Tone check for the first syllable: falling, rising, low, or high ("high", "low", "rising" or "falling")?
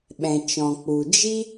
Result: low